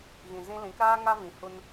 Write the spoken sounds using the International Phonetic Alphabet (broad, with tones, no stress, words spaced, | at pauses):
ɣĩ˨zĩ˧ lĩ˨˦kɾaː˦ ŋa˦vĩ˨hu˧n